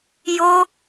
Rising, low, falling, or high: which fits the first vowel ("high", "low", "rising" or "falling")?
high